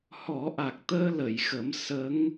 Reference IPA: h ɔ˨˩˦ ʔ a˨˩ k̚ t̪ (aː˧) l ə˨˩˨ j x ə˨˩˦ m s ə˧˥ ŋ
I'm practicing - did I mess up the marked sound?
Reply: yes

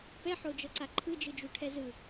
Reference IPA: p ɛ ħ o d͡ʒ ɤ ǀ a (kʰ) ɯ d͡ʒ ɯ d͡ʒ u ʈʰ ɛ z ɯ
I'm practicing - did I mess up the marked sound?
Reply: yes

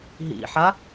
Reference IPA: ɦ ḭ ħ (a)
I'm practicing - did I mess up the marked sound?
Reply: no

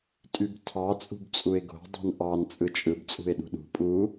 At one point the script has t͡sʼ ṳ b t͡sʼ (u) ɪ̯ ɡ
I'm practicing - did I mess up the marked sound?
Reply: no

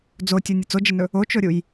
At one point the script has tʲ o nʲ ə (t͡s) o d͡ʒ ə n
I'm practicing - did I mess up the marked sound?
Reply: no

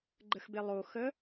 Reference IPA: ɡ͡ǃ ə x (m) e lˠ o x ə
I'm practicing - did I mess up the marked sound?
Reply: yes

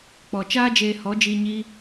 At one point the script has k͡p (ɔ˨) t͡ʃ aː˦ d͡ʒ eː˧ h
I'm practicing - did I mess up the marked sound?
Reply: no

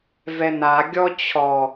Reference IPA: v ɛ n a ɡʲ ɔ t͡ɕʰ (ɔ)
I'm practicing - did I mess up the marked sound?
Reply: no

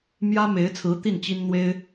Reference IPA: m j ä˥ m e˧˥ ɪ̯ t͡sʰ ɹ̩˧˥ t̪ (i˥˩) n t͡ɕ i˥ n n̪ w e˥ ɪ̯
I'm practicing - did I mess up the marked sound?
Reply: no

